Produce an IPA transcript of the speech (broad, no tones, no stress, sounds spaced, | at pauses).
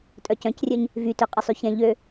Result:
tʼ œ c œ̃ c rʲ œ ɲ | v y t ø qʼ ə sˤ y ç ɛ̃ ʎ ø